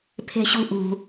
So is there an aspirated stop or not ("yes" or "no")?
yes